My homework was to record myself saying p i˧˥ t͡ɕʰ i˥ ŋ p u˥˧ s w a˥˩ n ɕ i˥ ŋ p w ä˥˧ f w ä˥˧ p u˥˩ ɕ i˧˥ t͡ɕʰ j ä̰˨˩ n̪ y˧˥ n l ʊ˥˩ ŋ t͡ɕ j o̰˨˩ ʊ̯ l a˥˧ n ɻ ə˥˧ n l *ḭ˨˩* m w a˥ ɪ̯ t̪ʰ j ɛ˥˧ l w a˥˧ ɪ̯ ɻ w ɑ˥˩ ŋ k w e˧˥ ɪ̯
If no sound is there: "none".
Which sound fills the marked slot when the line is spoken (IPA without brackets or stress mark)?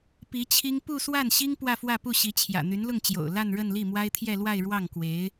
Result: i˥˩